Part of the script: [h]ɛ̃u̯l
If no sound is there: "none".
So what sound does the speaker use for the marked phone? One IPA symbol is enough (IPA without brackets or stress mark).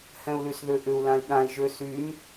h